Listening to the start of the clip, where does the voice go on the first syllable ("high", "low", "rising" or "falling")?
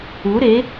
rising